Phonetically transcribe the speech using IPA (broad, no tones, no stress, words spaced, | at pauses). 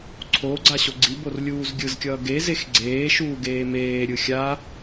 ǀʰo ɡ͡ǀaɕoɡ͡ǀibor lʲuːzɡʲɯzkʲʌː ɡezex ɡ͡ǀeːʃuː ɡeːmeːɾʲɯ xʲa